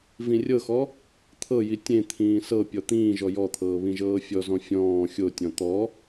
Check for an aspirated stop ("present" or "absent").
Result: present